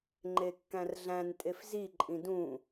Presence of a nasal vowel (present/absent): present